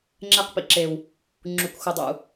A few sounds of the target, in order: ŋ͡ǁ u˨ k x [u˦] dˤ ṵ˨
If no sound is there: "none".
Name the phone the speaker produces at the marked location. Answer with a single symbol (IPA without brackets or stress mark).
u˨